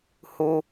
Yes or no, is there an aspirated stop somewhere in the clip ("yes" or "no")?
no